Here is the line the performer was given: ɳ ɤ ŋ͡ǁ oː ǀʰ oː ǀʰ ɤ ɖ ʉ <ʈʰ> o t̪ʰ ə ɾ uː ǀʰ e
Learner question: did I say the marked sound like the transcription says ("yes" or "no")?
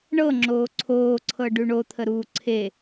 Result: no